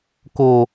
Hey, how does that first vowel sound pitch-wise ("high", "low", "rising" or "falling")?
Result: low